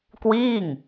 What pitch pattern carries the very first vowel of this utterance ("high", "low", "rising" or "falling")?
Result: falling